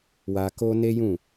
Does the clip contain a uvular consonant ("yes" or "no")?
no